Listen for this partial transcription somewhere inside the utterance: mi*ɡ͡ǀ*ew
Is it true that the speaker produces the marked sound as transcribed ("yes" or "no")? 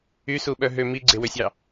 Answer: yes